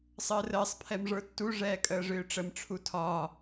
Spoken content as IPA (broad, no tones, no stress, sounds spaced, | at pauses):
sˤ əː r əː sˤ pʰ ɛ m ʐ ə˞ tː u ʐ ɛː kʼ əː ʐ ʏː ʈ͡ʂ ə m ʈ͡ʂʰ u tʰ ɒ